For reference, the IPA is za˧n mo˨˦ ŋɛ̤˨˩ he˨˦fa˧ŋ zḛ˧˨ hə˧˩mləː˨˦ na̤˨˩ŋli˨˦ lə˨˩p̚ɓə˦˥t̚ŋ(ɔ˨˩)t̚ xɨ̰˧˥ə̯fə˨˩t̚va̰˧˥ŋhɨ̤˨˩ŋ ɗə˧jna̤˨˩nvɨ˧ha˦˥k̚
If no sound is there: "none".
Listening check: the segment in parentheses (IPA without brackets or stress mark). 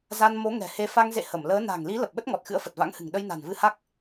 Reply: ɔ˨˩